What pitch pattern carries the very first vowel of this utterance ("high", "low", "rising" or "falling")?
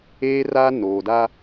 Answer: high